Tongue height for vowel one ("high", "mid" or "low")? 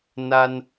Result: low